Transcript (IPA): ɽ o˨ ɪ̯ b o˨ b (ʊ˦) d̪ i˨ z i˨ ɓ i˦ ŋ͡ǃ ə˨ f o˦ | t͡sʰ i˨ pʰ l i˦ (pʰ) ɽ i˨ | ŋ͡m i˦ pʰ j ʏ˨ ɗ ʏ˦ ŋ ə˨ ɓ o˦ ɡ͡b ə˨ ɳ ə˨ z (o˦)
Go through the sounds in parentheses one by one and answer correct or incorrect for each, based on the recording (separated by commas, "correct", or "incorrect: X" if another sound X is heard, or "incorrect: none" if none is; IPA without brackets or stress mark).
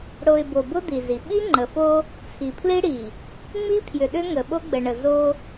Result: correct, incorrect: none, correct